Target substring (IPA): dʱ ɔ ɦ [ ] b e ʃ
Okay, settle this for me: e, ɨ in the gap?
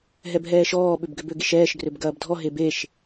e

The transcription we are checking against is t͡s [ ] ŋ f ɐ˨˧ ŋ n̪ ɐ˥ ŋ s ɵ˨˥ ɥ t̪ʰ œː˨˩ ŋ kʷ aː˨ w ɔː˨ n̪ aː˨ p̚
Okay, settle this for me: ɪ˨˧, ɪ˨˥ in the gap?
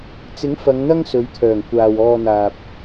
ɪ˨˥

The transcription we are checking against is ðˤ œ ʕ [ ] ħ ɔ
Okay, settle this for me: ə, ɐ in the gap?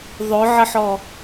ə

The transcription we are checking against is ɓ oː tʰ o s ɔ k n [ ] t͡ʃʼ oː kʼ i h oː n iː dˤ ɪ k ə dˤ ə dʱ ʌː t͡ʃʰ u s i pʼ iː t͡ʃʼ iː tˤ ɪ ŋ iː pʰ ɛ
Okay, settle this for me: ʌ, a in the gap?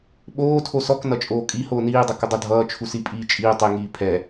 ʌ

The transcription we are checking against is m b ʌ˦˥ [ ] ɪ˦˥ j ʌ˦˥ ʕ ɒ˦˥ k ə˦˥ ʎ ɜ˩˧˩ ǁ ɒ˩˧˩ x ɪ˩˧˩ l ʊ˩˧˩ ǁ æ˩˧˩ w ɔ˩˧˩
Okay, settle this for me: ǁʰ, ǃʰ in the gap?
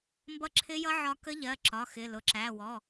ǁʰ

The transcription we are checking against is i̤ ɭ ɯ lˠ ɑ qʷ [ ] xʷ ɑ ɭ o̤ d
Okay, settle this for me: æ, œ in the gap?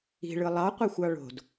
æ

